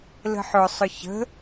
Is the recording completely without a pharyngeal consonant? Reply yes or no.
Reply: no